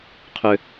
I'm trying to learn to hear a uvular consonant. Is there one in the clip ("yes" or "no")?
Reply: yes